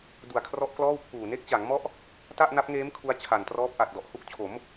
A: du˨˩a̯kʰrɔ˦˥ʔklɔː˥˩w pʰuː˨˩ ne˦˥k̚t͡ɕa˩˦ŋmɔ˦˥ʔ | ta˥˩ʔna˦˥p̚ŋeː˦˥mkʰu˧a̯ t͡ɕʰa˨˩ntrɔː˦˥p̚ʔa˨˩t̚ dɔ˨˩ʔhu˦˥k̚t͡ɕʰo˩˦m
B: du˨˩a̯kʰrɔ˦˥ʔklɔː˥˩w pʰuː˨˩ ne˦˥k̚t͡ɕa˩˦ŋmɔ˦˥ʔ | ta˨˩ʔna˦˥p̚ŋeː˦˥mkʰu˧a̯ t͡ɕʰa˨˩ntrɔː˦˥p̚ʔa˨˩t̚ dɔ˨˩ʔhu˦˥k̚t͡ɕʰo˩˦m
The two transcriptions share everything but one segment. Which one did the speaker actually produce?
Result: A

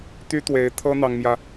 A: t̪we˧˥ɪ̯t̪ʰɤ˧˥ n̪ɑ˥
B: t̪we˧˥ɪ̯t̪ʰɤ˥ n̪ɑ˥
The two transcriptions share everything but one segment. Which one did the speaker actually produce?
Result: B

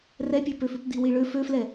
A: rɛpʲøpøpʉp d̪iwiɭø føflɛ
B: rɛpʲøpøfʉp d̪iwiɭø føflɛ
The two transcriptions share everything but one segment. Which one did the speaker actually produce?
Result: B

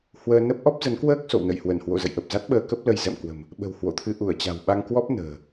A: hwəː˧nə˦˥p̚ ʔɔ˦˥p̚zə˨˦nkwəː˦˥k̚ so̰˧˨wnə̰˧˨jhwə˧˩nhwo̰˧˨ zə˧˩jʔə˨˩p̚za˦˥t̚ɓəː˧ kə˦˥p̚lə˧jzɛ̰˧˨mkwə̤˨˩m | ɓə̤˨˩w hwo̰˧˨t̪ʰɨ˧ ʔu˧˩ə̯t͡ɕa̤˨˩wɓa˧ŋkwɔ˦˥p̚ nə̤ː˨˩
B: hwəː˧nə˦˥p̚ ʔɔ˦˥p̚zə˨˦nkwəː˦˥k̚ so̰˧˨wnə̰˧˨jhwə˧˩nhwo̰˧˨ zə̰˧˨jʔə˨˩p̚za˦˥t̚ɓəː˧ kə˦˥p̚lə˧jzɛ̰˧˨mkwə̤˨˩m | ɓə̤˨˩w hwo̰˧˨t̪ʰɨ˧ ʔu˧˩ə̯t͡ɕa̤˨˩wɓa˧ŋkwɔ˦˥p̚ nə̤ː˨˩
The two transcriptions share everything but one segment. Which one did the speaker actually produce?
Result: B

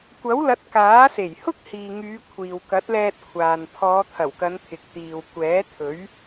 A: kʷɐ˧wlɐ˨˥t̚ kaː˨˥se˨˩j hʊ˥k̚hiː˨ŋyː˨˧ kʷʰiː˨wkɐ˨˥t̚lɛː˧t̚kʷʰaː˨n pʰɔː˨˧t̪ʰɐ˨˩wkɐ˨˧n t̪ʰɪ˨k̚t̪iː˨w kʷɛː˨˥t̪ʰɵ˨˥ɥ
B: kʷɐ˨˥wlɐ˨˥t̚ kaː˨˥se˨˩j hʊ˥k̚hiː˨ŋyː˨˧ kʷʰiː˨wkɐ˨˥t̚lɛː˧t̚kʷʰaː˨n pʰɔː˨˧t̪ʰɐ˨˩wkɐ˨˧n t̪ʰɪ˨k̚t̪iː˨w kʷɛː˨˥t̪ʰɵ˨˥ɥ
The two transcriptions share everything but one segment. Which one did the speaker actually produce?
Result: B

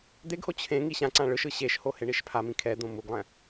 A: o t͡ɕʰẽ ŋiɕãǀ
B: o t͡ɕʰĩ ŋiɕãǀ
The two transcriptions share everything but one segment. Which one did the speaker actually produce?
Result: A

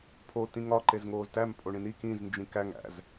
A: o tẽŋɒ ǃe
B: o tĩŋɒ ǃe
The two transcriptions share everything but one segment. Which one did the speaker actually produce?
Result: B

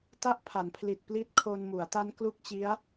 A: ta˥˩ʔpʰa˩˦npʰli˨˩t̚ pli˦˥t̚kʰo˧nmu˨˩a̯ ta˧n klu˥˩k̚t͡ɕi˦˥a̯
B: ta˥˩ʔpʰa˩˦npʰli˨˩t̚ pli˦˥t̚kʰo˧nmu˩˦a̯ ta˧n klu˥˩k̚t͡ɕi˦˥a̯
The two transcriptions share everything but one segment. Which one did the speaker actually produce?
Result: B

